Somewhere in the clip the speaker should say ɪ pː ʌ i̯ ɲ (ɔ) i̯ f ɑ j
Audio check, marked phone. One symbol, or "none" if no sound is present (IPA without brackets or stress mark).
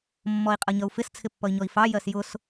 ɔ